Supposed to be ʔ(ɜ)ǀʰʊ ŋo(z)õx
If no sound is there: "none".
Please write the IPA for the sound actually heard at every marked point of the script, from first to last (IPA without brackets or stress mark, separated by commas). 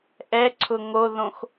ɛ, ð